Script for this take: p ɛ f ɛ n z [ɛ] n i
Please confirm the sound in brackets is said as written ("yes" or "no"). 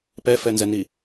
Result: yes